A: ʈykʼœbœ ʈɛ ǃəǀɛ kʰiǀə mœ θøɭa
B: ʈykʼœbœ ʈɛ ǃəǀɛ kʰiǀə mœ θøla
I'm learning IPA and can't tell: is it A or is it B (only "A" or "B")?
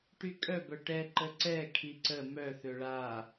A